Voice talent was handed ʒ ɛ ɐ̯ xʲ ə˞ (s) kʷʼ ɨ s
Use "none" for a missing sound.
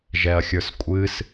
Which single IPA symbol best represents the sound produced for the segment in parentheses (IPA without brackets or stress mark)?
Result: s